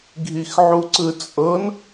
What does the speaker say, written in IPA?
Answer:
ɡʱ i x ʕ u ǀ ɯ t͡sʼ ɤ n

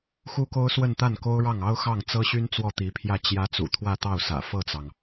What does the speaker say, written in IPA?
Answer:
x u˥ k o˥ ʊ̯ s w ə˥˧ n t̪ a˥˩ n k o˥ ʊ̯ ɻ ɑ˥˩ ŋ ɑ˥ ʊ̯ x ɑ˥˩ ŋ t͡s ɤ˥ ɕ y˥ n t͡s w ɔ˥˩ t̪ i˧˥ pʰ j ä˥˩ t͡ɕ j ä˧˥ t͡s ṵ˨˩ t̪ʰ w ä˥˧ t̪ ɑ˥˩ ʊ̯ s ä̰˨˩ f ɤ˥˩ t͡s ɑ˩ ŋ

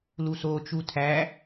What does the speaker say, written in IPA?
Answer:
l u s oː t͡ʃ u tʰ æ

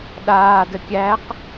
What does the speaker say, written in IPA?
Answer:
ɗ aː d ə kʲ æ q

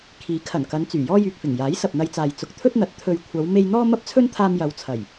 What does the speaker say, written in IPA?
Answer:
kʰ iː˨˥ kʰ ɐ˨˩ n k ɐ˨˧ n t͡s yː˨˩ j ɔː˥ j yː˨ k̚ f ɪ˨˩ ŋ j aː˨˥ j s ɐ˨ p̚ n̪ ɐ˧ j t͡s aː˨ j t͡s ʊ˨ k̚ t̪ʰ ɵ˥ t̚ n̪ ɐ˨˥ t̚ t̪ʰ ɵ˨ ɥ kʷʰ ɐ˨˧ w m e˧ j n̪ ɔː˥ m ɐ˥ p̚ t͡sʰ ɵ˥ n t̪ʰ aː˧ m j ɐ˨˧ w t͡sʰ ɐ˨˩ j

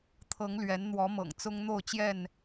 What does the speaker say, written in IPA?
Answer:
t̪ʰ ɤ˨˦ ŋ l ɥ ɛ˨˦ n n̪ w ɔ˨˦ m ɤ̰˨˩ ŋ t͡s ʊ˦ ŋ n̪ o˥˨ ʊ̯ t͡ɕ j ɛ˥˨ n

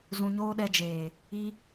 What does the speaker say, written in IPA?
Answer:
z ũ˧ ɲ oː˦ ɗ ɛ˧ d͡ʒ eː˨ | i˦

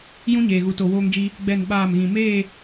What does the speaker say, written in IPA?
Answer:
j ũ˦ ɲ eː˨ ɣ u˨ t o˨ w oː˦ ŋ d͡ʒ i˦ | ɡ͡b ɛ˦˨ n ɓ aː˦˨ m ɣ ĩ˨ m eː˦˨

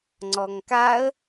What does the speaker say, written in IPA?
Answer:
ŋ͡ǀ ɔ ŋ k a ə̯

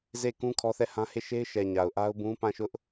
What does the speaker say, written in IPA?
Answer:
z e˦˨ k ũ˦ kʰ ɔ˦ θ ɛ˦˨ h ã˦ h e˦˨ ʃ e˦ ɪ̯ ʃ ɛ˨ ɲ a˨ ʊ̯ ʔ a˦ ʊ̯ b ũ˦ p ã˦˨ ʃ ʊ˦ ʔ

